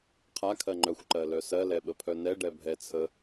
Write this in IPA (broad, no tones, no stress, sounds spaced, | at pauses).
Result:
qʰ a kʰ ɜ ŋ͡ǃ œ xʷ ǃ ɜ l œ s ɜ l ɛ ɓ ə pʰ œ n ɛ ɖ ɛ bʱ ɛ t͡sʰ ə